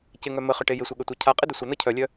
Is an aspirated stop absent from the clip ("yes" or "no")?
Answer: no